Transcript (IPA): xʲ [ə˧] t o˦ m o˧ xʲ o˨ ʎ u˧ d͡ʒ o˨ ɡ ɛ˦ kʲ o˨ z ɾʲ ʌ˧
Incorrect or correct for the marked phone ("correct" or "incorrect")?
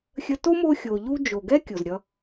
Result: correct